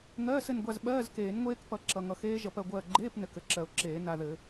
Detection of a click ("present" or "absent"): present